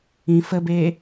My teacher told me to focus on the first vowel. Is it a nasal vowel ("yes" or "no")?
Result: yes